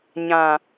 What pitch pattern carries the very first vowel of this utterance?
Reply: low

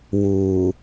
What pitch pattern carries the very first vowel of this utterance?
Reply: low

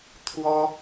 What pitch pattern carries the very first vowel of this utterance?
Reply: high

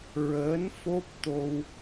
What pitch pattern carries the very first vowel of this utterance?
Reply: rising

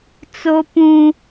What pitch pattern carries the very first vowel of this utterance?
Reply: high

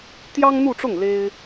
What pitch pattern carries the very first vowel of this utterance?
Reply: high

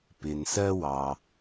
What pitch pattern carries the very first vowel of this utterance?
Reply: low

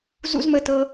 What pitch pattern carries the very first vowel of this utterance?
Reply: high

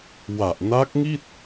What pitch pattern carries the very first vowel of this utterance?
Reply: low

